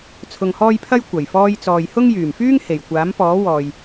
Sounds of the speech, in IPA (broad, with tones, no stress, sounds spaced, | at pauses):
t͡sʰ ʊ˧ ŋ h ɔː˥ j pʰ ɐ˥ j kʷ ɐ˨˩ j f ɔː˧ j t͡s ɔː˨ j h ʊ˥ ŋ j yː˨˩ m f yː˥ ŋ h e˨˩ j kʷ aː˨˥ m p ɔː˨˥ w ɔː˨ j